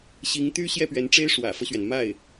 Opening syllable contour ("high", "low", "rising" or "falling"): rising